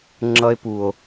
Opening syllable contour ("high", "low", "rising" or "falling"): high